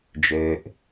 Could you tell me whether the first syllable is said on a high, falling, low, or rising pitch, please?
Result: low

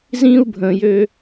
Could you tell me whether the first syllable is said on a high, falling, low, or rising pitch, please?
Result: high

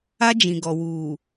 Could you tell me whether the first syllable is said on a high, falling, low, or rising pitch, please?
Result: high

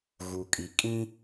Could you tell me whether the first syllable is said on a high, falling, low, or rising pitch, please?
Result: low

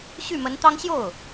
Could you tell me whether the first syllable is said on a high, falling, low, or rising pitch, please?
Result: falling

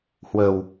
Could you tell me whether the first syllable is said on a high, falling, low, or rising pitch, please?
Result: low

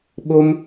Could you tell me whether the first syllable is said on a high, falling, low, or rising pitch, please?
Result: high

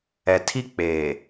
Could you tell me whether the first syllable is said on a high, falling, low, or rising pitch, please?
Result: low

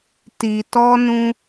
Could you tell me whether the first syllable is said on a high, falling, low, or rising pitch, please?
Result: low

